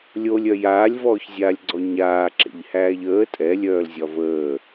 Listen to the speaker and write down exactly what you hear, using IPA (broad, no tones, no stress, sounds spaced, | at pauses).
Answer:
lʲ o lʲ œ j aː lʲ v ɔː ç zʲ aː lʲ ɡ͡ǀ ɔ ɲ aː ǁ ḛ ʎ h æː ʎ əː tʼ ɛ lʲ œː l zʲ ɒ v əː